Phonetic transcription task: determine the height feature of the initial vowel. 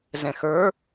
mid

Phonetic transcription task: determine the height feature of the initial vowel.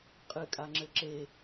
high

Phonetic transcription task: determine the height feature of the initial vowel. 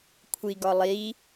high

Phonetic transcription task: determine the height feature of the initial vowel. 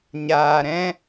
low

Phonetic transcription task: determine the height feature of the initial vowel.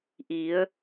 high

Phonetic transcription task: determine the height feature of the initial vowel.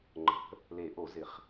mid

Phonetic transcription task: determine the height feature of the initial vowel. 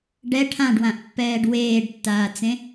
mid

